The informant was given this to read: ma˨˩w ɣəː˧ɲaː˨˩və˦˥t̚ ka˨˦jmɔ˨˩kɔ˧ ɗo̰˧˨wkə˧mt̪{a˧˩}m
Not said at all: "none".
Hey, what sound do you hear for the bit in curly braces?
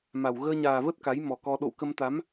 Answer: a˨˦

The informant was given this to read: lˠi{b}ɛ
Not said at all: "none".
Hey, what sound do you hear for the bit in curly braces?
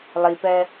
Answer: p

